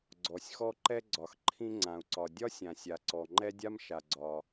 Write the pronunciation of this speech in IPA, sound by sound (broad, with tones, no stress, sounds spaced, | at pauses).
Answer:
ɡ͡ǀ ɔ˩ sʲ x ɔ˥ ǃ ɛ˥ ɡ͡ǀ ɒ˩ x ǃʰ ĩ˥ ŋ͡ǀ ã˩ u̯ ǀ ɒ˩ dʲ ɒ˥ sʲ ã˩ sʲ a˩ ǀ ɔ˩ ŋ͡ǃ ɛ˥ dʲ a˥ m ʃ a˩ ɡ͡ǀ ɒ˩